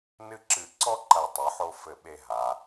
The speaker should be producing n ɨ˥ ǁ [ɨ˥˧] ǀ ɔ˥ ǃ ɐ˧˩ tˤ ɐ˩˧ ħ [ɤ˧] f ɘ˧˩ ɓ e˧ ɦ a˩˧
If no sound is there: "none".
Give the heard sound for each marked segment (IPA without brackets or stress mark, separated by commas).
ɨ˧˩, o˧